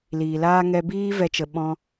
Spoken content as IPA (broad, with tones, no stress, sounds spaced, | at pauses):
l iː˨ l aː˦ ŋ ɛ˧ b iː˦ v ɛ˦ t͡ʃ ə˧ ɓ ɔ̃˦